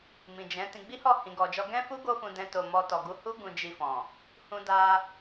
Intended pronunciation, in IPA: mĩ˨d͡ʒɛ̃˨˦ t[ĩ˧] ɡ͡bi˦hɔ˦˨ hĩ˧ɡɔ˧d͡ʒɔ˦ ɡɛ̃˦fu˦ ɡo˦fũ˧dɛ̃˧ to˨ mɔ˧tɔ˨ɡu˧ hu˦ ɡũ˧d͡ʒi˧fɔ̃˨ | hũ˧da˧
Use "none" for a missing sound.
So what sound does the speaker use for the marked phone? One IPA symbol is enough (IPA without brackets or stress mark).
ĩ˧